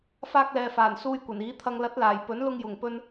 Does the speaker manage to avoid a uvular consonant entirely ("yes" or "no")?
yes